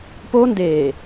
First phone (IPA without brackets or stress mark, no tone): p